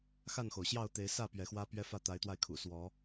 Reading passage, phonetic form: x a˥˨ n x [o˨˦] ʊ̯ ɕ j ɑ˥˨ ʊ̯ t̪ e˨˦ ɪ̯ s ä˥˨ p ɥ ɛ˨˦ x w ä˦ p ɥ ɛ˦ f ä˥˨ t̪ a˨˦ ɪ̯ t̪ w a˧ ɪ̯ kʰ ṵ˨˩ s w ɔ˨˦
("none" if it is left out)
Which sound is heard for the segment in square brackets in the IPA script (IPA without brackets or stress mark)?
o˩